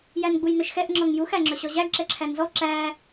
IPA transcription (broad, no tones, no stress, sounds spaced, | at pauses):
j æ n ɡ͡b u j n ɵ ʃ x ɛ ʔ ŋ͡ǁ ɔ ŋ j u x æ ŋ͡ǁ ɵ ɕ ɔ ʑ æ ɡ ǁ ɛ ǁʰ æ n z ɔ ǁ æ